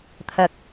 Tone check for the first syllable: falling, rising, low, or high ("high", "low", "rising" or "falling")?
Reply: low